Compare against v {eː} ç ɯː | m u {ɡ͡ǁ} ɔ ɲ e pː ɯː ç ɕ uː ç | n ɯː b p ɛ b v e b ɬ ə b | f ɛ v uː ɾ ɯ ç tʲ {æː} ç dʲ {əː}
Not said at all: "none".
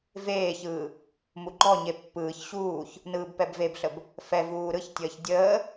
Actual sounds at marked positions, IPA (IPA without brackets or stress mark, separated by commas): eː, ɡ͡ǃ, əː, əː